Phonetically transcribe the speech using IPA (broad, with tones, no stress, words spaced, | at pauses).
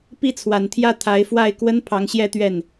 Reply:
pi˥˩t͡sʰwa˨˩n t̪ʰjä˥˩ t̪ʰa˧˥ɪ̯fwa˥˩ɪ̯kwə˥n pʰɑ˧˥ŋ ɕjɛ˥˧t̪ɥɛ˥˩n